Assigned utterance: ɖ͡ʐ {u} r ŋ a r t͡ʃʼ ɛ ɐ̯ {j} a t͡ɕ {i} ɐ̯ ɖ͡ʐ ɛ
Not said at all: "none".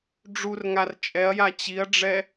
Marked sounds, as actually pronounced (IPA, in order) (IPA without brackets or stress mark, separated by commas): u, j, i